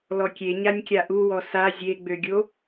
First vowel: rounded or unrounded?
rounded